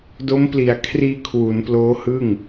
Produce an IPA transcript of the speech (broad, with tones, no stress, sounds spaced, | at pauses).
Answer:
d o˦˥ m p l i˨˩ a̯ kʰ r iː˧ kʰ w u˩˦ n p l oː˦˥ h ɯ˥˩ ŋ